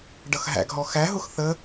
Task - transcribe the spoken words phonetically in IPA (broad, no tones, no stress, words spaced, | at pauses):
ɖʌxɦæ̰ɡɦɔ xæɦʊx θə